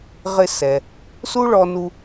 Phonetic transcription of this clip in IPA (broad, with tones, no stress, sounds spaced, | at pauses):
ʁ ɪ˧ s ɛ˩ | s u˥ ɭ ɔ˧ n u˧